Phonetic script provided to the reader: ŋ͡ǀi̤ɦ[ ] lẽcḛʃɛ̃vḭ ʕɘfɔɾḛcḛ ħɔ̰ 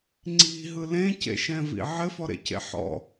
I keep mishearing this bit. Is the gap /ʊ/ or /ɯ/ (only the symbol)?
ɯ